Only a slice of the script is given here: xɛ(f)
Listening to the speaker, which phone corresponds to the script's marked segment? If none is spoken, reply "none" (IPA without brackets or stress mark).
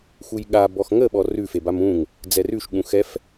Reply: f